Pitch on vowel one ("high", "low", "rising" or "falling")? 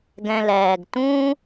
low